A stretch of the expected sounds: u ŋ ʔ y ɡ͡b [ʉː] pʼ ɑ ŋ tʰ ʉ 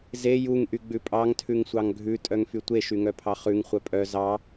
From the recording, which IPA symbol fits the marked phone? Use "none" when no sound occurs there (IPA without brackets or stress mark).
ʉ